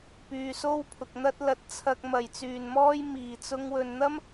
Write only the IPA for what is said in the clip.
p yː˨ s o˥ w pʰ ʊ˨ k̚ n̪ ɐ˥ t̚ l ɐ˧ t̚ t͡sʰ ɐ˧ k̚ m ɐ˨˩ j t͡s yː˨˩ n m ɔː˧ j m iː˨˩ t͡s ʊ˧ ŋ w ɵ˨ n n̪ ɐ˥ m

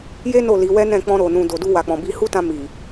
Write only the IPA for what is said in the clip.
j e˦ n o˦˨ l i˨˦ w ɛ˦ n ɛ̃˦˨ k͡p ɔ̃˧ ɾ o˨ n ũ˨ d o˨ d u˧ w a˨ k͡p ɔ̃˨ b i˧ h u˦ t ã˧ m i˨

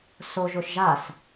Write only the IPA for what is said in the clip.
s o ʒ ʊ ʃ ʒ a s

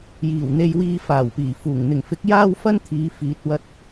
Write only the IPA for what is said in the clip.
j iː˨˩ w n̪ e˧ j w iː˧ f aː˨˩ w p iː˨˩ f uː˨˩ ŋ n̪ ɪ˨˩ ŋ f ɪ˨˥ k̚ j aː˥ w f ɐ˥ n t̪ʰ iː˨˧ f iː˨ t̚ w ɐ˧ t̚

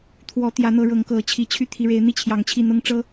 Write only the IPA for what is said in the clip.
t̪ʰ w ɔ˨˦ t̪ j ä˨˦ n̪ ɤ˨˦ ɻ ɤ˨˦ ŋ k ɤ˨˩ t͡ɕʰ i˨˦ t͡ɕʰ y˦ t̪ʰ i˨˦ ɻ e˨˦ ɪ̯ n̪ i˥˨ t͡ɕʰ j ɑ˨˩ ŋ t͡ɕʰ i˥˨ n̪ ɤ˦ ŋ ʈ͡ʂ ɤ˦

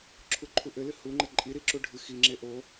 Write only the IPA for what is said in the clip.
ǁʰ u ǃʰ u ʔ ɘ l ɨ h u ŋ͡ǃ ɘ ǃʼ i ɾ i ǁ u ɖʱ ɨ x i ŋ͡ǁ e ʔ o

